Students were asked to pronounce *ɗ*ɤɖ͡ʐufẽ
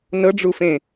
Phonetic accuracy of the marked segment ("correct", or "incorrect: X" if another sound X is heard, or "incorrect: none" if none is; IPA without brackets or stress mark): incorrect: n